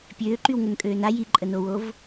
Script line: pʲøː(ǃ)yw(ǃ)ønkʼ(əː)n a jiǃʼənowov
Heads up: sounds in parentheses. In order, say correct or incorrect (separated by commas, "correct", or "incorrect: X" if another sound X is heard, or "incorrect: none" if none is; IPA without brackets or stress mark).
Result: correct, incorrect: ŋ, incorrect: øː